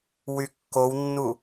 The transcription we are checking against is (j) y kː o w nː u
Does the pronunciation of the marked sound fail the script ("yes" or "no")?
yes